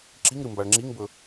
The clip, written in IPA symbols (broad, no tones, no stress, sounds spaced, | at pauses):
ǁ i ŋ ɾ ɨ m b a ɭ ŋ͡ǁ i ŋ b ɵ